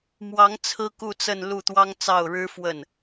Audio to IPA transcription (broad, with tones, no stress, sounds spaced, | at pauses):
m w ɑ˧˥ ŋ t͡sʰ ɹ̩˥ k u˥˧ t͡s ə˥˧ n l u˥˩ t̪ w ɑ˥ ŋ t͡s ɑ˥˩ ʊ̯ ɻ ɻ̩˥ f w ə˥˩ n